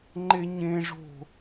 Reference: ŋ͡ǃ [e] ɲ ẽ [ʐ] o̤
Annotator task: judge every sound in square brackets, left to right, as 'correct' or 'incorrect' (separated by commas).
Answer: correct, correct